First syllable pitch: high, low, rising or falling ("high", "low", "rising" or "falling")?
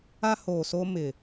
high